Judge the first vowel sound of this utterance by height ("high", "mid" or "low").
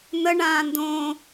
mid